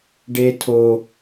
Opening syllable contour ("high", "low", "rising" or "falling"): low